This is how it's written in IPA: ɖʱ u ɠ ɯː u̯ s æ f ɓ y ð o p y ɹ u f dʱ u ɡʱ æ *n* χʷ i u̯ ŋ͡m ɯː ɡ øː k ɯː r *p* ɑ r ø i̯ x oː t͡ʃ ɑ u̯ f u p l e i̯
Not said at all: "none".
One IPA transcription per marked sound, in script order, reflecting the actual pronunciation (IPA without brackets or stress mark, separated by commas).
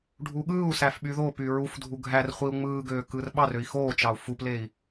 r, ɓ